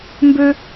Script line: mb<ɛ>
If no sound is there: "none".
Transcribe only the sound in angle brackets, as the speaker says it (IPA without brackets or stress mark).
ø